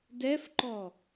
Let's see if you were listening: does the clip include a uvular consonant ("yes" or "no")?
no